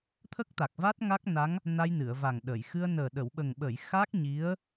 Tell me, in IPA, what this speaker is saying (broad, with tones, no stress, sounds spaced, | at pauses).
t̪ʰ ə˦˥ k̚ t̪ a˨˩ k̚ v a˦˥ t̚ ŋ a˦˥ k̚ n a˧˥ ŋ | n a˧ j n ɨ˨˩˨ ə̯ v a˨˩ ŋ ɗ ə˨˩˨ j x ɨ˧ ə̯ n əː˨˩ ɗ ə˨˩˨ w ɓ ə˨˩ ŋ ɓ ə˨˩˨ j x a˦˥ k̚ ɲ i˧˥ ə̯